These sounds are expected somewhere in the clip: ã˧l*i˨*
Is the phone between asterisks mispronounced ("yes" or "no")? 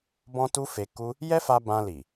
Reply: no